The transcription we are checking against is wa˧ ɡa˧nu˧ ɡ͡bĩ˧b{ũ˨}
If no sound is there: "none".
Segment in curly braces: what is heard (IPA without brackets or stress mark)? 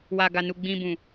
ũ˨